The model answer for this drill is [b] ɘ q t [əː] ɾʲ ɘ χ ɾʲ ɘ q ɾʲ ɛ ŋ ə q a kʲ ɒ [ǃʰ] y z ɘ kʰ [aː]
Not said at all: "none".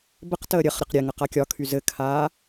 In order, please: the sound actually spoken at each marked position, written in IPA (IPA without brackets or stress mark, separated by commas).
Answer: b, əː, kʰ, aː